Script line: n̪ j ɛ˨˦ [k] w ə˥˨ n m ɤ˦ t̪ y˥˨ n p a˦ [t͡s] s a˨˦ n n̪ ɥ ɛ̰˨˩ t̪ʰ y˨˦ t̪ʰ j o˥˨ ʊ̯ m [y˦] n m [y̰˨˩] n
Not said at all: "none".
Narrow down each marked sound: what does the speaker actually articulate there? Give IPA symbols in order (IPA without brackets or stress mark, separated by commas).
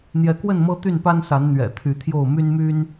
k, n, y˦, y˦